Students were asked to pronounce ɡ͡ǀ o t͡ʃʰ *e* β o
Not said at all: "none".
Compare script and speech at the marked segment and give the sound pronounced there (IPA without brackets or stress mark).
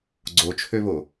ø